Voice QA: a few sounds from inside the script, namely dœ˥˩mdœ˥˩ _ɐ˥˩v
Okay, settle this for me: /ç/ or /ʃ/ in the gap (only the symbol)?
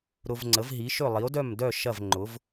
ʃ